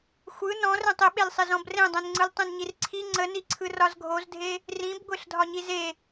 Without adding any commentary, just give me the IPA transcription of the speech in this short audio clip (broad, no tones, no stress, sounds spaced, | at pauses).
xʷ ɯ n ɔ̃ r ẽ tˤ ɪ ɓ e l sˤ ɪ z ɔ̃ b r ẽ dˤ ẽ n ŋ͡ǀ ɯ l tˤ ẽ n ɲ i r ǀʰ i ŋ͡ǀ ə n i ǀʰ ɯ r ɒ z ɡʱ o z dʱ e | r ĩ b ɡʷ e ɬ dʱ ɒ ɲ i z e